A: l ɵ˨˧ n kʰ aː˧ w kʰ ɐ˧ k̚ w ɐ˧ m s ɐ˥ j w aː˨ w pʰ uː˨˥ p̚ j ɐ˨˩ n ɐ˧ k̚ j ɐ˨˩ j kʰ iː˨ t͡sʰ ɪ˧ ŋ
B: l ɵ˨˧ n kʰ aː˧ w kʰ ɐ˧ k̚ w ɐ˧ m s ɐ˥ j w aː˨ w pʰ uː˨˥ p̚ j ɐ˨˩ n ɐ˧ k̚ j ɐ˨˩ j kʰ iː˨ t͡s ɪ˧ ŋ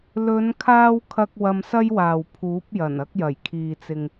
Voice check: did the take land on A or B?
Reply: B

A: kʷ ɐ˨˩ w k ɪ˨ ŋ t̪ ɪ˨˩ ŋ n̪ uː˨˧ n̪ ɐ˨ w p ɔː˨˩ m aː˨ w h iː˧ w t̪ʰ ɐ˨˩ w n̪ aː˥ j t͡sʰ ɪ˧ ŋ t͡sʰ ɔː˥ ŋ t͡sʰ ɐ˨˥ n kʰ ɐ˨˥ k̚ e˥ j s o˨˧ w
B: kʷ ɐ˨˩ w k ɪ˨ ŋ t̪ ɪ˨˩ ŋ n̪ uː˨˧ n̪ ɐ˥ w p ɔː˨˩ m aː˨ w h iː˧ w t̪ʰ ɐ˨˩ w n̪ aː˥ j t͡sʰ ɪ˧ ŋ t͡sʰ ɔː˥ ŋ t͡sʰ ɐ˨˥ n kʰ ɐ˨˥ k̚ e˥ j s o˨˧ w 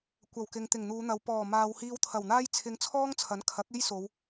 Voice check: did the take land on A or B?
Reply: A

